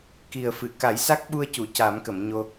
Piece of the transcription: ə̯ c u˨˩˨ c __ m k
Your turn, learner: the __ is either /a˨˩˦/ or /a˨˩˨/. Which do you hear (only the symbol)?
a˨˩˦